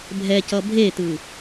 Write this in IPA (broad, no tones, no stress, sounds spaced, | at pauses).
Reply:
bʱ ɛ c ʌ bʱ e t ɯ